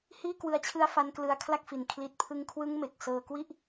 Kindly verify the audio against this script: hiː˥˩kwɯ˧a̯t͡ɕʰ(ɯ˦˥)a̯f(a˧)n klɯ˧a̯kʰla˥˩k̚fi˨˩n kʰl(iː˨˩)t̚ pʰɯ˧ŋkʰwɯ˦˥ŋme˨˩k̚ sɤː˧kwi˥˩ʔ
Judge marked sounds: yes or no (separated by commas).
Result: yes, yes, no